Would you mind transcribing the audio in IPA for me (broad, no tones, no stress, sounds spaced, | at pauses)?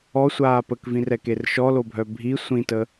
ɔ sʷ aː p ə k v ĩ r ɛ k e r ʃ ɔ l o bʱ œ bʱ i sʷ ĩ t ə